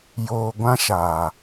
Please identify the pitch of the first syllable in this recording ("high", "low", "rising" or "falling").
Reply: low